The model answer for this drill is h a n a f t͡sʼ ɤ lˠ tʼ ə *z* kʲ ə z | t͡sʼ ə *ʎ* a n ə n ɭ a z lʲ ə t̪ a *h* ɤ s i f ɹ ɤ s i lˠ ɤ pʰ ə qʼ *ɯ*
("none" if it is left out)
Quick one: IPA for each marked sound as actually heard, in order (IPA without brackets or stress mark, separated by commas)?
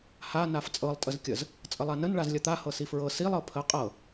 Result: z, lˠ, h, ɤ